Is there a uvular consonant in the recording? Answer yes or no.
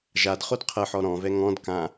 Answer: yes